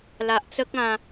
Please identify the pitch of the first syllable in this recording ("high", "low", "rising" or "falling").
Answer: low